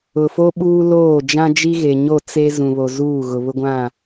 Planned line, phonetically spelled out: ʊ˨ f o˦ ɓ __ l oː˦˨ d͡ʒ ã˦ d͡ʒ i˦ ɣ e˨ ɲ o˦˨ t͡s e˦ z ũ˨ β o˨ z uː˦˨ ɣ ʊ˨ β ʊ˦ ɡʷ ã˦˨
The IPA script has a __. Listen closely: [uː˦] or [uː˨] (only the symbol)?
uː˦